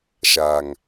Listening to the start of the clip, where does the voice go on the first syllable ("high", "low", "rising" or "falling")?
low